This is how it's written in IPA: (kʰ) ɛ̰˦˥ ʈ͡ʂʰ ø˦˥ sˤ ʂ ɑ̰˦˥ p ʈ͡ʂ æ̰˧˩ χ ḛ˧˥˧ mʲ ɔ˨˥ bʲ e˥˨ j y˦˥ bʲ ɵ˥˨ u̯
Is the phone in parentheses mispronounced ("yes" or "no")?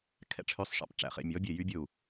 no